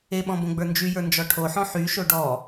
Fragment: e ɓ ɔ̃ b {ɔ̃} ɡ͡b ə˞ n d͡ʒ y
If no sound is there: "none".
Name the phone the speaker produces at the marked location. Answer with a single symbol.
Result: õ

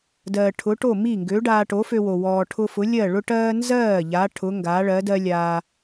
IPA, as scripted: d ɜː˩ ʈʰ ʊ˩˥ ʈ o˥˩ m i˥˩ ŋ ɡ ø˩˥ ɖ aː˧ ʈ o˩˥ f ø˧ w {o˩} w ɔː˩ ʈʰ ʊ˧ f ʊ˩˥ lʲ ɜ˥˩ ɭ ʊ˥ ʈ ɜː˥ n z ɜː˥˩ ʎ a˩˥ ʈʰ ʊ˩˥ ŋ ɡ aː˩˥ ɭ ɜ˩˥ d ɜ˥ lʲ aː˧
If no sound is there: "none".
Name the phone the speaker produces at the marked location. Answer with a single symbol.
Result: o˩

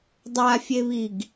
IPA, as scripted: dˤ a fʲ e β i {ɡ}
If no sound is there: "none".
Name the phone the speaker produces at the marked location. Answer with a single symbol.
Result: ɡ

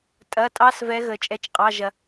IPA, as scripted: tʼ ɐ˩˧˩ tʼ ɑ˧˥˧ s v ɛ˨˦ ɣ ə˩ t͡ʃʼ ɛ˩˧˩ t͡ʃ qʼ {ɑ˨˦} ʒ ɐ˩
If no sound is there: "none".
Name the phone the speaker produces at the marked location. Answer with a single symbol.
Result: ɑ˩˧˩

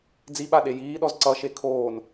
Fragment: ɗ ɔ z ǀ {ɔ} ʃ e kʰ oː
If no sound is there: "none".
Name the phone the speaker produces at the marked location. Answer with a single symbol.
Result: ʌ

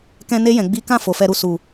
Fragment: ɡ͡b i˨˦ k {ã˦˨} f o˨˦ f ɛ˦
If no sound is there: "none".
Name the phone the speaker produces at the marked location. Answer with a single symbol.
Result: ã˦˨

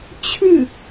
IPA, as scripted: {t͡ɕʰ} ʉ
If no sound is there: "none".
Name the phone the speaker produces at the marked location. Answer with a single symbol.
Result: t͡ɕʰ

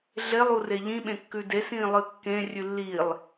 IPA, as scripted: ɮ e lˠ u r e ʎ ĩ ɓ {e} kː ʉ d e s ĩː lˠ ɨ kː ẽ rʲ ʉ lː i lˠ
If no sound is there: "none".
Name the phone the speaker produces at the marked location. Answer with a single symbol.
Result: ẽ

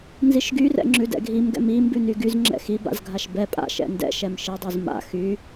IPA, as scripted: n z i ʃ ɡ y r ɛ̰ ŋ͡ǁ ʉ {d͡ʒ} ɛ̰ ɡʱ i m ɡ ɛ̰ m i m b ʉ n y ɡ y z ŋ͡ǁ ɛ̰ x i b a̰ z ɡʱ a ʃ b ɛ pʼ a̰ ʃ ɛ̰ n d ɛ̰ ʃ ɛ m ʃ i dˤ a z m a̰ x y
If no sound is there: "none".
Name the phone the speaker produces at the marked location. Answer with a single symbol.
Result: d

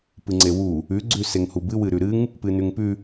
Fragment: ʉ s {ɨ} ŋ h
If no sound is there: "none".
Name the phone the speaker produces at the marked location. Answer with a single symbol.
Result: e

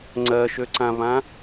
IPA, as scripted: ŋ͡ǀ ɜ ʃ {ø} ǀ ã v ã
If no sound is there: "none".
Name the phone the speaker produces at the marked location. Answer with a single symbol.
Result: ø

